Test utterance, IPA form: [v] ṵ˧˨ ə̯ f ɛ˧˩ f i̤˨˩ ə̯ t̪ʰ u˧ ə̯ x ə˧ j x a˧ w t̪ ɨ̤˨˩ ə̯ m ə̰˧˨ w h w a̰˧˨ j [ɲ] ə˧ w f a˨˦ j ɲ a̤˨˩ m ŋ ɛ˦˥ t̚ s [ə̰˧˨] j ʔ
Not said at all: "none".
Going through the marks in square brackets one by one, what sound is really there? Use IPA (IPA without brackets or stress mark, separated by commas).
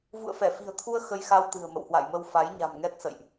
v, m, ə̰˧˨